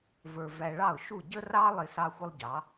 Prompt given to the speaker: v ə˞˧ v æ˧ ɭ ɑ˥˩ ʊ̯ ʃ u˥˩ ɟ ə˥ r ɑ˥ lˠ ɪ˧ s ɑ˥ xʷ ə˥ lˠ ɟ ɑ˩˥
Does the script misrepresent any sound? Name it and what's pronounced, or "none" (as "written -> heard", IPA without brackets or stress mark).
none